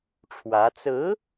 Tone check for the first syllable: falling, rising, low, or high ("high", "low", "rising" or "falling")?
rising